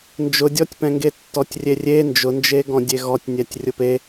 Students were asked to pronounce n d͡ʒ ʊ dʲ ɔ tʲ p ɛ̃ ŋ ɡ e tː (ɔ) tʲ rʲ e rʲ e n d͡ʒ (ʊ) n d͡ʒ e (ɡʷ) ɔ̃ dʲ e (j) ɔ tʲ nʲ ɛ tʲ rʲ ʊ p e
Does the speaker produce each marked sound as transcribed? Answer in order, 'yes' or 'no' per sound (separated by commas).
yes, yes, no, no